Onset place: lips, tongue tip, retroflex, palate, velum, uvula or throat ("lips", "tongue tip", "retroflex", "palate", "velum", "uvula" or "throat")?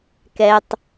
velum